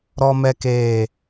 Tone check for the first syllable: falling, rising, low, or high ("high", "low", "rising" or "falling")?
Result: high